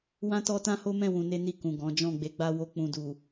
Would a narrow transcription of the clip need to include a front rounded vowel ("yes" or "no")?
no